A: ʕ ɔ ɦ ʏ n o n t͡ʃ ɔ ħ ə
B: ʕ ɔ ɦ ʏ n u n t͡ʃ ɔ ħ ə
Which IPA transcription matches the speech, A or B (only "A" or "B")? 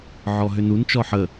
B